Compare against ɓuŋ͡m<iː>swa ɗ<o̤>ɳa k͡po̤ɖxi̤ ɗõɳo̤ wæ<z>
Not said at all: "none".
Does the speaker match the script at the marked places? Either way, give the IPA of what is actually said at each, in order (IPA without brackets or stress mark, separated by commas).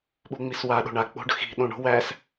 i, o̤, s